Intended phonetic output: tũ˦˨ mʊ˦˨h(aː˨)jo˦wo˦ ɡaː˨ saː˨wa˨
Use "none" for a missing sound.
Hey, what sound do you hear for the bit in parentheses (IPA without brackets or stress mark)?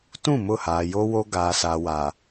aː˨